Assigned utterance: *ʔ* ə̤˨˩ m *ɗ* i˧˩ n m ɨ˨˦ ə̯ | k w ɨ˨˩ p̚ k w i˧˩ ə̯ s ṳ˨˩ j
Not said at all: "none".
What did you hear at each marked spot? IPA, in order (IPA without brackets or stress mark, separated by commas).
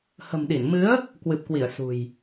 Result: h, ɗ